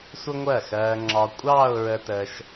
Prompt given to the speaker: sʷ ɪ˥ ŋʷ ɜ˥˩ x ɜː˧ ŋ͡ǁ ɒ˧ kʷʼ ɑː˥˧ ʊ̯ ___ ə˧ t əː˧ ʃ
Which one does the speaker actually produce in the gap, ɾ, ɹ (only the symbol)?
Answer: ɹ